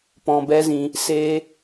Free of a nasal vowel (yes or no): no